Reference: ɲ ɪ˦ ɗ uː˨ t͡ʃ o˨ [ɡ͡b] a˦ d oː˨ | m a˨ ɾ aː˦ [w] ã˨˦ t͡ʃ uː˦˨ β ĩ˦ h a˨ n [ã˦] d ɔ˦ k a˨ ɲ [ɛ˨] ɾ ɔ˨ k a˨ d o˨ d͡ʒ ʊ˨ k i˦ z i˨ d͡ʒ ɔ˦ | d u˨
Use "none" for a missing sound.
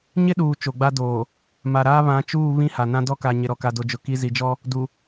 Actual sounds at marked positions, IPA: ɡ͡b, β, ã˦, ɪ˨

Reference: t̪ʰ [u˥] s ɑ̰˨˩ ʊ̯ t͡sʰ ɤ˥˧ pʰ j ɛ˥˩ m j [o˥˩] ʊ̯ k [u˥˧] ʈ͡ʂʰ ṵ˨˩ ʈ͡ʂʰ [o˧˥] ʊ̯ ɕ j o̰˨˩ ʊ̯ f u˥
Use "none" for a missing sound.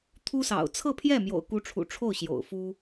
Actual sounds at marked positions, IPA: u˥, o̰˨˩, u˧˥, o˥˩

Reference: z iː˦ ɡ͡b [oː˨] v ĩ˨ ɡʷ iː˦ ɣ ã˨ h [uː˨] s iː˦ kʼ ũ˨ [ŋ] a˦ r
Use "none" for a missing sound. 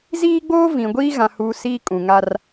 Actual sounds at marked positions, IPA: oː˦, uː˨, ŋ

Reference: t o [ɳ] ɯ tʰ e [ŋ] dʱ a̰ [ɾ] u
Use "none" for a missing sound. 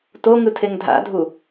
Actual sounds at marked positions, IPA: ŋ, ŋ, dʱ

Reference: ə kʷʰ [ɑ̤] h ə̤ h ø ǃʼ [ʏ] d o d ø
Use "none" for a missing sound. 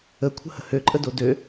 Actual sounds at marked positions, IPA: ə̤, ə

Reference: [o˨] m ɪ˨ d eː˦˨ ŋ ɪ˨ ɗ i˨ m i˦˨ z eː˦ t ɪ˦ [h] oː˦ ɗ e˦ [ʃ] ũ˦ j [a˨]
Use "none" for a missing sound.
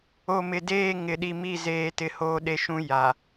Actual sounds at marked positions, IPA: o˨, h, ʃ, a˨

